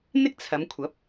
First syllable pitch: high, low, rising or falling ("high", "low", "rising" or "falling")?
high